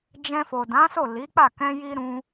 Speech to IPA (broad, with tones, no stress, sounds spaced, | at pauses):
d͡ʒ ɛ̃˧ f o˨ d ã˨˦ s o˦˨ l i˨˦ k͡p a˦˨ k ɛ̃˧ j i˧ ɾ ũ˧